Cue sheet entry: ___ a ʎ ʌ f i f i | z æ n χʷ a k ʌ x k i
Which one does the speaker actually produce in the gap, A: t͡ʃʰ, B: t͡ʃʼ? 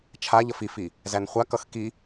A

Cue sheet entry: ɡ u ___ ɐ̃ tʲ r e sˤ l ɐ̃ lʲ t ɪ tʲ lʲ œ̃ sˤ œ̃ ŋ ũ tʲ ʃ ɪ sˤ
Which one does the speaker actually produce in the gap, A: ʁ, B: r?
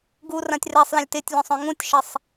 B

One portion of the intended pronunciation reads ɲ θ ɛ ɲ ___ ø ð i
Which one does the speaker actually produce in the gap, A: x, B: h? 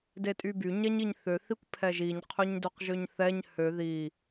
B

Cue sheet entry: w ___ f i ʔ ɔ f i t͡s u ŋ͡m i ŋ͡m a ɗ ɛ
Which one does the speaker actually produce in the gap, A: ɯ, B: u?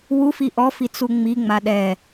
B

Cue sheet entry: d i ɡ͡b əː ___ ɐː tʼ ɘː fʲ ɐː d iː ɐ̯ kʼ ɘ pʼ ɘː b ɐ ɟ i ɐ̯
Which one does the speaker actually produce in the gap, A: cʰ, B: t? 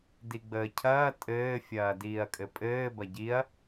A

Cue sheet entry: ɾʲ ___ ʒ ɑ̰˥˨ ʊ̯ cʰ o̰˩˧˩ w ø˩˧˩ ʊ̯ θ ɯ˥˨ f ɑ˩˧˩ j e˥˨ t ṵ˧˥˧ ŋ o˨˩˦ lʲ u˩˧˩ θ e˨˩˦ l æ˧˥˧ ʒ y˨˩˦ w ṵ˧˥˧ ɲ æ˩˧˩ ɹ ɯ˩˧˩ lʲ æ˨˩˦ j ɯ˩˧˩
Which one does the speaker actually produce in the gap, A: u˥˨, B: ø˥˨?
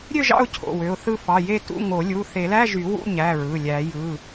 B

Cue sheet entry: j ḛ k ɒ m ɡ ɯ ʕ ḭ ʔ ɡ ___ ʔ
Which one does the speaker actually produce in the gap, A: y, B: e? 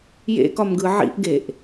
B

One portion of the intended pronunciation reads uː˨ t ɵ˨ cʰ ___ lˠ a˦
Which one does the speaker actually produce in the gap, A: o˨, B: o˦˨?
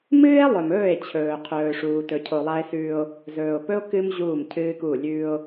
A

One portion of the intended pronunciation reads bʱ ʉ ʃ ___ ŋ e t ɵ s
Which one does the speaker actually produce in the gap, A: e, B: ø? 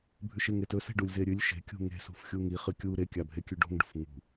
A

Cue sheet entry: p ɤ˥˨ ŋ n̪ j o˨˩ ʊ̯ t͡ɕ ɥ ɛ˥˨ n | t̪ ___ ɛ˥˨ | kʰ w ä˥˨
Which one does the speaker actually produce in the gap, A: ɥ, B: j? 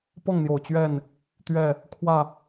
A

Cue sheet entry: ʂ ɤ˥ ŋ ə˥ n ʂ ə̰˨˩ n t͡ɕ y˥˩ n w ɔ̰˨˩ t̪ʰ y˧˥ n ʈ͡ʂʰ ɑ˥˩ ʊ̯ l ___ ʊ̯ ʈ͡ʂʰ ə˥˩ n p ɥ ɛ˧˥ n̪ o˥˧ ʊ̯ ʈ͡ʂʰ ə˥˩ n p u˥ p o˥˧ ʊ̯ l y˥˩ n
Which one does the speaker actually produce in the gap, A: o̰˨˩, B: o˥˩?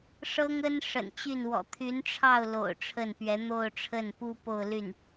A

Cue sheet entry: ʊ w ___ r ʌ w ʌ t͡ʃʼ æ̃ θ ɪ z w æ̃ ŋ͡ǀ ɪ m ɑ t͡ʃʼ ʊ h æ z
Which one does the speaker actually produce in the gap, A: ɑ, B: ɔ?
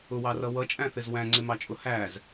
A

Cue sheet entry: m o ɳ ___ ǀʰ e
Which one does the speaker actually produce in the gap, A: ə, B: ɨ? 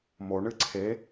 B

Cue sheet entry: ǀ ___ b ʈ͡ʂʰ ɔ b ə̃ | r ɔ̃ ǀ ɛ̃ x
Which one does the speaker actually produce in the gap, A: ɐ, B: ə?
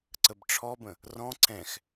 B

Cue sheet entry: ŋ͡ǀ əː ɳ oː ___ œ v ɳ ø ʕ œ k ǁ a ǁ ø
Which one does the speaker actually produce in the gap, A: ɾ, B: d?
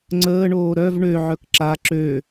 A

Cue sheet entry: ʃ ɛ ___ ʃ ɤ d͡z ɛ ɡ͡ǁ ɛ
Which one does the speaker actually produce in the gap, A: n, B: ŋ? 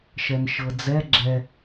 A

